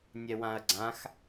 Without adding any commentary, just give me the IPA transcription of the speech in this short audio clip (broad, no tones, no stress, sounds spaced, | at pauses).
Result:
nʲ ɛ w ã ɐ̯ ɡ͡ǀ ã x